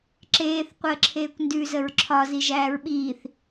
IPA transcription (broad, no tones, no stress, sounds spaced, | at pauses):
ǁ eː θ qʷ əː ǁʰ eː kʷ n d ʉ z ə ɹ ǁʰ ɒ z i ʒ æː ɹ ɓ iː θ